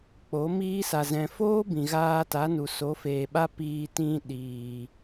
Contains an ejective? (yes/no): no